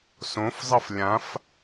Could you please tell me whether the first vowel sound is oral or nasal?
nasal